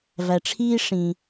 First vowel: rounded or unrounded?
unrounded